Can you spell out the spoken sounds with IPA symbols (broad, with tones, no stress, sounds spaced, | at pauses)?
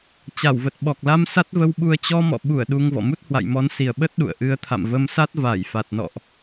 t͡ɕ a˧˩ w v ə˨˩ t̚ ɓ ɔ˨˩ k̚ l a˧ m s a˦˥ t̚ v ə˧ w ɓ u˧ ə̯ t͡ɕ ɔ˧ m ɔ̰˧˨ ɓ u˧˩ ə̯ ɗ u˧ ŋ v ɔ̰˧˨ m u˦˥ t̚ h w a̰˧˨ j m ɔ˨˦ n s i˨˩ ə̯ ɓ ə˦˥ t̚ ɗ ṵ˧˨ ə̯ ʔ ɨ˨˦ ə̯ t̪ʰ a̰˧˨ m v ə˧ m s a˦˥ t̚ v aː˧˩ j f a˨˩ t̚ n ɔ̰˧˨ ʔ